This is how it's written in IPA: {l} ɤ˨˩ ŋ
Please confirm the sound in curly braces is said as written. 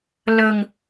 yes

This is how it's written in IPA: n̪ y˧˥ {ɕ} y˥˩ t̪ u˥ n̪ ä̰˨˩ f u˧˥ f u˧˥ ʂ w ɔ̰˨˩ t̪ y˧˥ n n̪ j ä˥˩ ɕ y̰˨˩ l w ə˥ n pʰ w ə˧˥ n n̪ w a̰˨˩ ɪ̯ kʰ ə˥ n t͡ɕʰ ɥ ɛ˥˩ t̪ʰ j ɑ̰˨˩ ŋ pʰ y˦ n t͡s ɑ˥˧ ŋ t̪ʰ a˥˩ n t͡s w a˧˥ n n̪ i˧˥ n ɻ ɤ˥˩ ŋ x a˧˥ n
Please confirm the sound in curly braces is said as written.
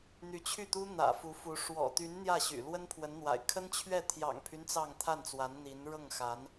no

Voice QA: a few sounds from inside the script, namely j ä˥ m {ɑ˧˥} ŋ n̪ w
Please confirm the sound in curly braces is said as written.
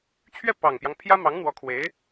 yes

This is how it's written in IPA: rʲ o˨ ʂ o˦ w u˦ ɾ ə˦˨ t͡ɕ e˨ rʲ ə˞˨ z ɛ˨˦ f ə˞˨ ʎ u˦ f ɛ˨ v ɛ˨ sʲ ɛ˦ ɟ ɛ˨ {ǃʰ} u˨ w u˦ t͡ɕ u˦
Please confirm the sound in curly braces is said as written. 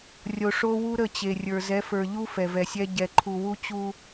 yes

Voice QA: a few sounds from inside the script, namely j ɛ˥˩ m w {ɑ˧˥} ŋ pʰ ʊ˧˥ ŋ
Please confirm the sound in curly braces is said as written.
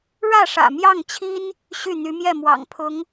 no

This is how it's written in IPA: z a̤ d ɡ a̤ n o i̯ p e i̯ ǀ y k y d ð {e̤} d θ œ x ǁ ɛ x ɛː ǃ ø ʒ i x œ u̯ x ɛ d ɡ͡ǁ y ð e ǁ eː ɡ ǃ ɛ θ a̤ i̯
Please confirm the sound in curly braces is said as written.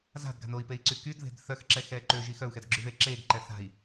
yes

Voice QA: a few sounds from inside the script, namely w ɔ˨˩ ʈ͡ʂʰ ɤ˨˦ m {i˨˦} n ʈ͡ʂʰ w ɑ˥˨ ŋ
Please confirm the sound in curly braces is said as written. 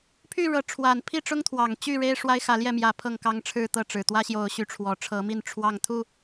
no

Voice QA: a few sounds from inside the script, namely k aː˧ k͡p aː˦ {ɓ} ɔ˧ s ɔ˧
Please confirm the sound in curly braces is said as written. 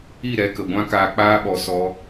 yes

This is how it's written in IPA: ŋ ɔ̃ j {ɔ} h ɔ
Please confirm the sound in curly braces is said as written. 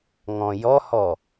yes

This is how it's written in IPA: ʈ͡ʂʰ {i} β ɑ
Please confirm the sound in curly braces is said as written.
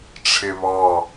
no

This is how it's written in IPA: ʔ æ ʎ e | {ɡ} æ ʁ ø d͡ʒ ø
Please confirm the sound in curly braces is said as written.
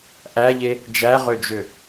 no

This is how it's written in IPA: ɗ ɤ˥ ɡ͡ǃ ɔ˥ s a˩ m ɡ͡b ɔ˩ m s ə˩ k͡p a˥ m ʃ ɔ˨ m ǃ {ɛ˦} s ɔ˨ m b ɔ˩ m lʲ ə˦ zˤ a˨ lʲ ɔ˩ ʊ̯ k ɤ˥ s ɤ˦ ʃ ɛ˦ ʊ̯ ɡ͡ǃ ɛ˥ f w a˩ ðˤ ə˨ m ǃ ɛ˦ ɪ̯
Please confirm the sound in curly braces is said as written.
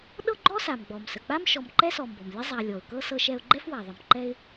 no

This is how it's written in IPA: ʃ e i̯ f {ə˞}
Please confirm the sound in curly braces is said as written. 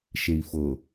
no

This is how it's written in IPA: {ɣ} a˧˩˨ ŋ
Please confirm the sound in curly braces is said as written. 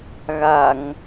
yes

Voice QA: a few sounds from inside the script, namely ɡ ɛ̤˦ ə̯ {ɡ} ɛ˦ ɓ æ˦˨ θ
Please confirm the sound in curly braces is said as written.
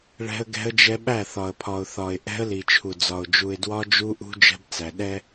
no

